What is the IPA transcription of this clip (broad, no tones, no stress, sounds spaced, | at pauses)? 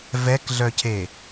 v ɛ k ɮ œ cʰ e